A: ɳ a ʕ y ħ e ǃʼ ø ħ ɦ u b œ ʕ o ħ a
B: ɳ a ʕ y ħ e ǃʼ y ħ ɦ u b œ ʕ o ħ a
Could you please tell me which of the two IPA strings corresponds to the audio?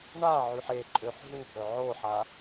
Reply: A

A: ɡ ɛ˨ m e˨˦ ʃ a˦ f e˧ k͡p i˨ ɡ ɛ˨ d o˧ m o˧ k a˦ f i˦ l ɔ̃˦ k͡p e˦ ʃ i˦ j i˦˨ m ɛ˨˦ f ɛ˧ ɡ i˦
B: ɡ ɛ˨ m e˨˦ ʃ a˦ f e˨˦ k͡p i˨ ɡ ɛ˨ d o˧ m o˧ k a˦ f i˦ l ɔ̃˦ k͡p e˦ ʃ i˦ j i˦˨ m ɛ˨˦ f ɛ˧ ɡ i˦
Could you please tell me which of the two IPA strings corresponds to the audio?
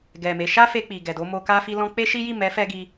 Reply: A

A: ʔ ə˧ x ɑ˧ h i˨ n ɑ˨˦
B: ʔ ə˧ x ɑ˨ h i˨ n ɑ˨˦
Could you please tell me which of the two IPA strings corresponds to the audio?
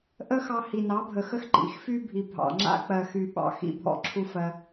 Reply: A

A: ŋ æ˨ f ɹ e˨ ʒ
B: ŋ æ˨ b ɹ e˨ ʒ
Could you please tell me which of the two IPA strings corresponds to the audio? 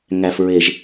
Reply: A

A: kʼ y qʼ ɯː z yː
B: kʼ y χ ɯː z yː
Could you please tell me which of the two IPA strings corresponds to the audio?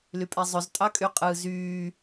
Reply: A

